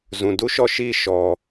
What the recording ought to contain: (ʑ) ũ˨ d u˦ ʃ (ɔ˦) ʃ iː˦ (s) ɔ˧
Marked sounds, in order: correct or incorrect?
incorrect: z, correct, incorrect: ʃ

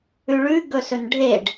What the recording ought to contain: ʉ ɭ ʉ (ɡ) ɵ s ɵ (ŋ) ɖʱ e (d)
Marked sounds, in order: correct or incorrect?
correct, incorrect: n, incorrect: ɖ

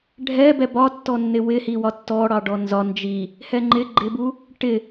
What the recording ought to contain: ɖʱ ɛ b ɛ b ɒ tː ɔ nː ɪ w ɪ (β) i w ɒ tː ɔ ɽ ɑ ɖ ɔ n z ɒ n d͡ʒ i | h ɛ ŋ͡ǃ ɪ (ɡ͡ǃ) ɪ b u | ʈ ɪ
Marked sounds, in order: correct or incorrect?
incorrect: h, correct

